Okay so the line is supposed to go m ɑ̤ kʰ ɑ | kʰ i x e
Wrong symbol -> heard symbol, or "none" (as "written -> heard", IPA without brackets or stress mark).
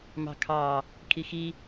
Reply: e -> i